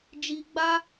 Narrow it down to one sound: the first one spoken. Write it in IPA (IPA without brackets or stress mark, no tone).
d͡ʒ